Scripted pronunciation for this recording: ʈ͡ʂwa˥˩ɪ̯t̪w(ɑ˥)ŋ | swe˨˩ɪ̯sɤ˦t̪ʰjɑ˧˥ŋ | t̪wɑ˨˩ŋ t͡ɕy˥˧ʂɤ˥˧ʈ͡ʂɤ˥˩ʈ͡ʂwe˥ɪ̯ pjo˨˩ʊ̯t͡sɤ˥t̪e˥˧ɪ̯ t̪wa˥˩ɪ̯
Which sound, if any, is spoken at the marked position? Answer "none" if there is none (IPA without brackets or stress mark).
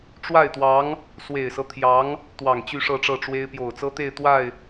ɑ˧˥